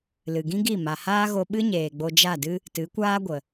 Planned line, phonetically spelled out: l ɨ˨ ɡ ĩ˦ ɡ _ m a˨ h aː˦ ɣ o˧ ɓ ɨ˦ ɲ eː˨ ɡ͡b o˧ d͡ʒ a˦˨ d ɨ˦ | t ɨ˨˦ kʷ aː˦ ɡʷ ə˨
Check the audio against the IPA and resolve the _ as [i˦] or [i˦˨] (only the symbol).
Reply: i˦˨